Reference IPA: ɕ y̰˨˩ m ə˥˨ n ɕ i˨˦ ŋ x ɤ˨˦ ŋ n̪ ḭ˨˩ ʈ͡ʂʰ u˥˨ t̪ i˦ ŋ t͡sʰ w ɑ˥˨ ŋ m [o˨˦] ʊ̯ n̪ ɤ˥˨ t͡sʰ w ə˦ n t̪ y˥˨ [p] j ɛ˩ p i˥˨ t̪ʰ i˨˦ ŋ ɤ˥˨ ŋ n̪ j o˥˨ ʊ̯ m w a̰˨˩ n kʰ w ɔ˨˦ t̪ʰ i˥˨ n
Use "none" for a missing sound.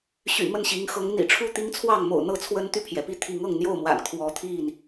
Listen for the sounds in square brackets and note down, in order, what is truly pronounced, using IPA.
o̰˨˩, pʰ

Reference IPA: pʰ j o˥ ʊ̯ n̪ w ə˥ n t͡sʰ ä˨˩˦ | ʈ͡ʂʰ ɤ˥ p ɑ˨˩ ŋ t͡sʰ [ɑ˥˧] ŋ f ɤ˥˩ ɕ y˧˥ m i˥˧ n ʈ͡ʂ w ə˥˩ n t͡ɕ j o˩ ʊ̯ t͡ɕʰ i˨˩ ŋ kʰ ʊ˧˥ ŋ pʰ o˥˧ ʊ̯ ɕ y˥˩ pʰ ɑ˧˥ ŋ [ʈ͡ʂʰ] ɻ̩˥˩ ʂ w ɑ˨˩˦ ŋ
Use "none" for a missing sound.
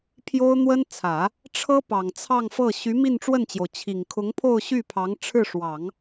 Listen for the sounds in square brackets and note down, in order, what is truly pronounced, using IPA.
ɑ˥˧, ʈ͡ʂʰ

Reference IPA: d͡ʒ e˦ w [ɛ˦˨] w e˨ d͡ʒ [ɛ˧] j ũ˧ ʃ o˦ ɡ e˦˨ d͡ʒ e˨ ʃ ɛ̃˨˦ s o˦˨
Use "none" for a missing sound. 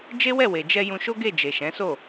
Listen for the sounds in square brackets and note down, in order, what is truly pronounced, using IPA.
ɛ˦˨, ɛ˧

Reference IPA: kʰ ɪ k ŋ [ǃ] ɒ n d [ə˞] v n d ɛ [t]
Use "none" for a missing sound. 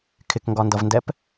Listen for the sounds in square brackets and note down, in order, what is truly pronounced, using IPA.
ɡ, ʌ, p

